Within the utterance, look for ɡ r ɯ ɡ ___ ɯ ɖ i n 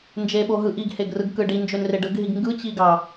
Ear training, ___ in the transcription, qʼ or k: k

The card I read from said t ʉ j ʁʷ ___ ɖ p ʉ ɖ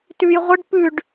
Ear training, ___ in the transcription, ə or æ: ə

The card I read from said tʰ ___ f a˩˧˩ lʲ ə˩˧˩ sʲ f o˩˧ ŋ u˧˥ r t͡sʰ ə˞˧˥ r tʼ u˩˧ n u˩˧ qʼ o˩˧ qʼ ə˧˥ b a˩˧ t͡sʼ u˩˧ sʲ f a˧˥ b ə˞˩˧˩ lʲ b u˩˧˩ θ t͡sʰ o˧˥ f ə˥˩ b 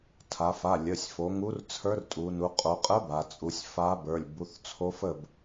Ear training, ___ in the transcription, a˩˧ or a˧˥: a˩˧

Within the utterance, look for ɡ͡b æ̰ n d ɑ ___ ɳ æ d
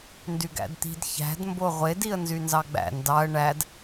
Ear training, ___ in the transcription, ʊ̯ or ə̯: ə̯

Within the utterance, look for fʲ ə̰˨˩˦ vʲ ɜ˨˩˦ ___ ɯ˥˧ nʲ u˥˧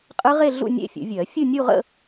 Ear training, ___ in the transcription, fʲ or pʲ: fʲ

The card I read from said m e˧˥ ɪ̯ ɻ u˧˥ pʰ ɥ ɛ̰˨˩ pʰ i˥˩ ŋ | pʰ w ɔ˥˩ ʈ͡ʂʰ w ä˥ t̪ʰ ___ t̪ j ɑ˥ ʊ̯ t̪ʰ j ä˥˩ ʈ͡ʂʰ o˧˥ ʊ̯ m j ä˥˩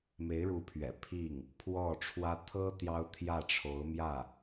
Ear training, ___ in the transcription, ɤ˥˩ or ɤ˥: ɤ˥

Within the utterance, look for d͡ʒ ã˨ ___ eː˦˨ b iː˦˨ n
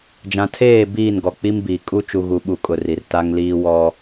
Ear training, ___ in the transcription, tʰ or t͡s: tʰ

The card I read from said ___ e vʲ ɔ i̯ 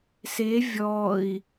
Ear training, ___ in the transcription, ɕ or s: s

